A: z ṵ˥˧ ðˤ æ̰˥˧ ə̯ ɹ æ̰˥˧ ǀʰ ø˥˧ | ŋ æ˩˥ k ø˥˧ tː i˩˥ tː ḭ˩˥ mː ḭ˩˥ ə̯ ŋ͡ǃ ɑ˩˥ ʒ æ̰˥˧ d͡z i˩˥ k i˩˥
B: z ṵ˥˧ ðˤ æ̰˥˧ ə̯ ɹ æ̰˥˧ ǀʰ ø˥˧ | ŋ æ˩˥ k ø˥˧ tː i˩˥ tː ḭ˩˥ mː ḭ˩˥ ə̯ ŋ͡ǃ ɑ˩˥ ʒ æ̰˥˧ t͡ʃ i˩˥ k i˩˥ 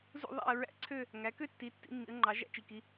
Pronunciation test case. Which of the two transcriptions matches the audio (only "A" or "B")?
B